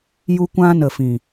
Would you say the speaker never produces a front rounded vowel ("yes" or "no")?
yes